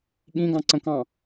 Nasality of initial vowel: nasal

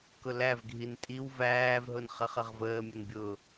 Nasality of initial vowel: oral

